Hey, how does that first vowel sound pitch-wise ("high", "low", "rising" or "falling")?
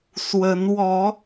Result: rising